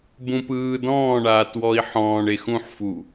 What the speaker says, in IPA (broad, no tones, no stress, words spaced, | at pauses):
bũpɯː dɔ̃ːɳaːtwɔi̯ ħɔ̃ːɳe xũħfu